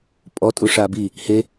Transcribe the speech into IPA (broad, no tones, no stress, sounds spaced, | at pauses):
pʼ ɔ tʼ u ʂ aː b i | h e